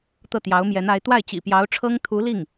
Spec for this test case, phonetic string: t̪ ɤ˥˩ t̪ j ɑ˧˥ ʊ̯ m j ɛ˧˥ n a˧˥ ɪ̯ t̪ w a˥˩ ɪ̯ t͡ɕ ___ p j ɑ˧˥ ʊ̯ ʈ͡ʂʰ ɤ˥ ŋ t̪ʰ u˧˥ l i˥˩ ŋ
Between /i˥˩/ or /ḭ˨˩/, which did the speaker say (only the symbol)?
ḭ˨˩